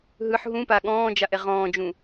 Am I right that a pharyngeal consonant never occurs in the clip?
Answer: no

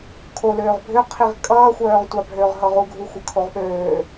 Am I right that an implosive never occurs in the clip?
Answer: no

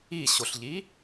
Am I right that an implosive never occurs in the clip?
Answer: yes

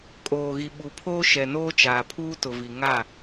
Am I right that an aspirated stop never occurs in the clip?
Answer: no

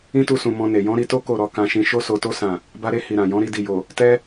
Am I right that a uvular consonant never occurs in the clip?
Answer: yes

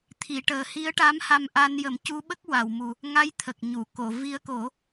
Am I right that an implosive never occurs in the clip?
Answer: no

